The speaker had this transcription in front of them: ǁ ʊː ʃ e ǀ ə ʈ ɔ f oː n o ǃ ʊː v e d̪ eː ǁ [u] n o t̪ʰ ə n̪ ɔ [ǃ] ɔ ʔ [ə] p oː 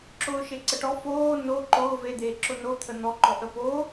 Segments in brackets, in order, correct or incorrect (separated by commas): incorrect, correct, correct